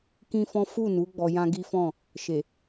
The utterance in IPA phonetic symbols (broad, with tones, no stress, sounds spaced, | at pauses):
k ĩ˦ f ɔ̃˦ f u˦˨ n u˨˦ ɡ͡b ɔ˧ j ã˦ ɡ i˦ f ɔ̃˦˨ | ʃ e˨